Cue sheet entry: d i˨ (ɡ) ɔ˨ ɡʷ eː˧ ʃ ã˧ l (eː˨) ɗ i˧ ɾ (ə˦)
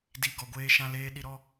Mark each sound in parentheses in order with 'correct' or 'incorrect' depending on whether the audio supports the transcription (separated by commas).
correct, incorrect, incorrect